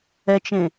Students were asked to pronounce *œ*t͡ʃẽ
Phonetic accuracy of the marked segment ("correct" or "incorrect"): incorrect